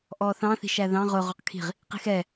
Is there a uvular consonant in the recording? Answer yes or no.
yes